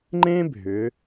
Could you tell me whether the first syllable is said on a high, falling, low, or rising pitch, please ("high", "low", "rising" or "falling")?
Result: high